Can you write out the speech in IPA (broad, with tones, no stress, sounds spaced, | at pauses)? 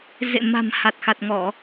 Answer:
z ḛ˧˨ m a̤˨˩ m h a˨˩ t̚ x a˨˩ t̚ ŋ ɔ˧˩˨